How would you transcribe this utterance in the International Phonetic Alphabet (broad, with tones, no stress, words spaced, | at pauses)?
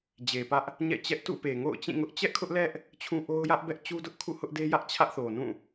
d͡ʑe˨ pä˦ʔ | ɲɛ̰˦˨t͡ɕɛ˦ʔ tṵ˦˨pe˨ŋo̰˦˨ʊ̯ t͡ɕĩ˦˨ŋʊ˦ʔ t͡ɕɛ˦ʔkʰʊ˦ʔlɛ˦ʔ | t͡ɕʰũ˦ʔo˦ʊ̯ jä˦ʔbɛ˦ʔt͡ɕu˦dʊ˦ʔ kʰṵ˦˨hʊ˦ʔde˦jä˦ʔ t͡ɕʰä˦ʔθo˨ nũ˦˨